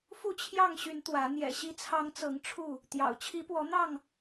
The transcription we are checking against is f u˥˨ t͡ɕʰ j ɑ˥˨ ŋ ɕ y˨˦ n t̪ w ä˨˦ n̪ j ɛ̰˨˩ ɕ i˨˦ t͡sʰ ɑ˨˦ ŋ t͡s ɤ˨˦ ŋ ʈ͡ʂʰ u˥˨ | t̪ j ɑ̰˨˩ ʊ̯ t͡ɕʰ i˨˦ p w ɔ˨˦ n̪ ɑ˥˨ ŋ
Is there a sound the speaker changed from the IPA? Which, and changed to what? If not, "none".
none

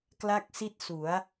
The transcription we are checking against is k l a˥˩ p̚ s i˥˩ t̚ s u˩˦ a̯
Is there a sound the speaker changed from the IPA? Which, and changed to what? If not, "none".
p̚ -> k̚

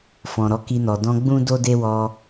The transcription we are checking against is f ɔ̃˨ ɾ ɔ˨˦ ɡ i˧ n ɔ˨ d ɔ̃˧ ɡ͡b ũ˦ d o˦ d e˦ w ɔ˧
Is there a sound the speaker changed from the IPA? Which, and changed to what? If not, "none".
ɡ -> k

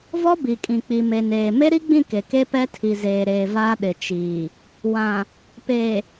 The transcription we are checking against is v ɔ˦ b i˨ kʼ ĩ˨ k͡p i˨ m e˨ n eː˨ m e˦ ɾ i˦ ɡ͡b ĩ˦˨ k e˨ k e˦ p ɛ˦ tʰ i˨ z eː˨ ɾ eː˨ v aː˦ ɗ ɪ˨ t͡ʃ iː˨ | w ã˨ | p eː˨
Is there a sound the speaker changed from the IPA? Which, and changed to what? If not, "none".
none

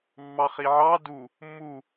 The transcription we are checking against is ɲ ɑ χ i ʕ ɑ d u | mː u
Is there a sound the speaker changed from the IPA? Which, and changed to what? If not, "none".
ɲ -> mː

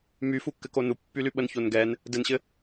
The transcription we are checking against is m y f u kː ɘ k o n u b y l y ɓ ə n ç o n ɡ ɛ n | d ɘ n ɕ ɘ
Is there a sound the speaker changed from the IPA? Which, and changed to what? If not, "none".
b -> pː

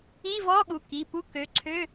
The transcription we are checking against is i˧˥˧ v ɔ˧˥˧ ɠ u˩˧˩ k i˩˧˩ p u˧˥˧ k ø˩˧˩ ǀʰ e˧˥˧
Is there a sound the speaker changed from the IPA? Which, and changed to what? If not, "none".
e˧˥˧ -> ø˧˥˧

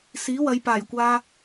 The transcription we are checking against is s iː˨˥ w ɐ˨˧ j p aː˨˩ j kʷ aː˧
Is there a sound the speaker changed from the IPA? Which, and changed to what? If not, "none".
none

